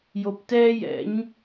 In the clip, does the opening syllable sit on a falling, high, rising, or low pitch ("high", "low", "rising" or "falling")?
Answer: low